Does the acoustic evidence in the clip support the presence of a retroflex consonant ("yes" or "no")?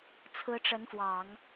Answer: yes